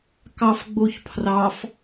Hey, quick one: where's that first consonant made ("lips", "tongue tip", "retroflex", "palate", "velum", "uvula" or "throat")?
velum